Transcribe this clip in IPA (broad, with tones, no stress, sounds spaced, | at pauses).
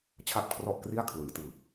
t͡ɕʰ a˥˩ p̚ kʰ r ɔ˥˩ ʔ k r i˥˩ a̯ kʰ l ɯ˩˦ ŋ t ɯː˨˩ k̚